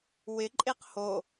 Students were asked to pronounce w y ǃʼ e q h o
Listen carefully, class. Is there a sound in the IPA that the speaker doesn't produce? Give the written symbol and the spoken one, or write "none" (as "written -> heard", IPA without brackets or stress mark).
y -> ɪ